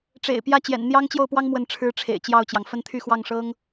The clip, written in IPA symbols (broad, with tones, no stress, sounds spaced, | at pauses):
ʈ͡ʂ ḛ˨˩ ɪ̯ p j ä˥˩ t͡ɕ j ɛ̰˨˩ n n̪ j ɑ˥ ŋ t͡ɕ j o˥˩ ʊ̯ p w ɑ˥ ŋ m w ə˥˩ n ʈ͡ʂʰ ɻ̩˥ ʈ͡ʂʰ ḛ˨˩ ɪ̯ t͡ɕ j ɑ˥˩ ʊ̯ t͡ɕ j ɑ˩ ŋ f ə˥ n t̪ʰ y˥˧ x w ɑ˥˩ ŋ ʂ ɤ˥ ŋ